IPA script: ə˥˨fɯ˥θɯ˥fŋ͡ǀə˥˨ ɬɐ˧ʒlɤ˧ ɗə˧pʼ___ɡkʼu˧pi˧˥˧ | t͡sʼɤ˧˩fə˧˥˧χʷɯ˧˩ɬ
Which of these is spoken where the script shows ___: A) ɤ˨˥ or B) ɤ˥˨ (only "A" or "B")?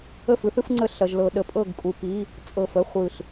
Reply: B